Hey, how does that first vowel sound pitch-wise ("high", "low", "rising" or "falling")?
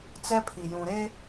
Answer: high